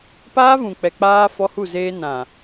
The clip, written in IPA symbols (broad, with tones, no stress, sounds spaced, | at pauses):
p aː˦ v ũ˨ k͡p ɛ˨ k͡p aː˦ f ɔ˦ h u˦˨ z eː˦ n ã˨